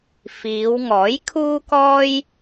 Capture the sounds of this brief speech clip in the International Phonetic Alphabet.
f iː˨˧ w ŋ ɔː˨˥ j kʰ uː˥ k ɔː˥ j

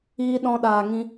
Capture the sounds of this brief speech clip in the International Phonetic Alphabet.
iː˧ ɗ ɔ̃˧ ɗ aː˨ ŋ ĩ˧

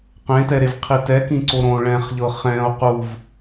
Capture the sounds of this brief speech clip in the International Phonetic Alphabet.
q ẽ t ɛ ɾ e v qʰ i t ɛ k ĩ ǀ o ɾ õ ɭ ɛ̃ χ ʎ ɤ χ ɛ̃ o̯ q u v

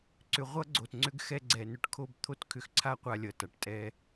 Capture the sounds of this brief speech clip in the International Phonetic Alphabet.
ǀ ʏ˨ ʁʷ ʌ˦ ɡ͡ǀ o˨ t ŋ͡ǀ ʏ˦ ɡ x ɛ˦ ɡ͡ǀ ɛ˨ n ʏ˦ ʈ kʰ o˦ b t̪ʰ o˦ t kʰ ʏ˨ x ǀʰ a˦ qʷ a˦ lʲ ʌ˨ t a˨ ʈ tʼ ɛ˦

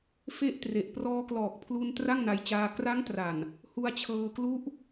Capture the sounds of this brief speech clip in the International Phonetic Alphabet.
f e˦˥ ʔ t r e˨˩ ʔ p r ɔː˧ k l ɔː˨˩ k̚ pʰ l u˧ n t r a˥˩ ŋ n a˧ j t͡ɕ aː˧ k r a˦˥ ŋ t r a˨˩ n | h u˧ a̯ t͡ɕʰ ɤː˧ k l u˦˥ ʔ

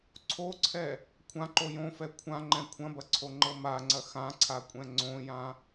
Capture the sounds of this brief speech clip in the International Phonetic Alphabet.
ǀʰ o ǀʰ ɛ | kʷʰ ã ǃ o j õ f ɛ kʷʰ ã ŋ͡ǃ ɛ̃ kʷʰ ɐ̃ b ɐ ǀʰ o ŋ͡ǃ ɤ m a ŋ͡ǀ ɐ x ã ǀʰ a kʷʼ ɛ̃ ŋ͡ǀ õ j ã

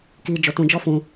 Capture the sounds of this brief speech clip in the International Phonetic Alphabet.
k i˧ d͡ʒ o˧ t ũ˧ d͡ʒ ɔ˦ f ũ˧

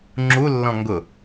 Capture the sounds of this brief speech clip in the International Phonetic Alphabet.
ŋ͡ǁ u lː ɔ̃ ŋ ɡ ʊ

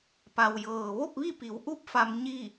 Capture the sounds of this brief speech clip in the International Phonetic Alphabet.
p a˩ w j ɤː˩ ʋ o˥˨ p̚ ʋ i˥˨ p i˩˧ w ʔ u˥˨ p̚ f a˧ m ɲ i˥˨

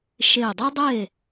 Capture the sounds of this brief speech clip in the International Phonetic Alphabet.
ʃ e˧˩ dˤ ɯ˥ dˤ e˥˨

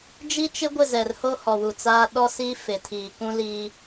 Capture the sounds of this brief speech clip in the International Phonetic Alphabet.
d͡ʒ i˦ t͡ʃ ɪ˦ ɡʷ ɪ˦˨ z ɛ˨ r h o˦ h ɔ˨ w u˨ t͡s aː˦ ɗ ɔ˦ s i˦ f ɪ˨ tʰ iː˨ k ũ˦ l iː˦

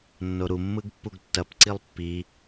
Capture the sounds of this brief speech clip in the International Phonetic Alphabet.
nː o ɾ u mː ɯ ɡ pː u ɡ tː ɐ p ǀ i lˠ pː i

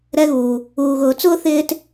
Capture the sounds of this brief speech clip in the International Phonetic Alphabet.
ɾ ɛ˦ ɣ uː˨ | uː˨ ɣ ʊː˨ t͡s ʊː˥ θ ɪː˦ t

